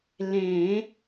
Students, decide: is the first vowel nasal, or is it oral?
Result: nasal